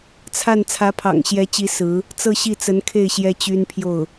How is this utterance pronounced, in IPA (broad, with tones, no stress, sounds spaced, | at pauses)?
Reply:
t͡sʰ a˥˩ n t͡sʰ ä˧˥ pʰ ɑ̰˨˩ ŋ ɕ j ɛ˧˥ t͡ɕ i˧˥ s ɹ̩˧˥ | t͡s ɤ˥˧ ɕ i˥˩ t͡s ə˧˥ n kʰ e˥˩ ɪ̯ ɕ j ɛ˥ t͡ɕ y˥ n pʰ j o˥˩ ʊ̯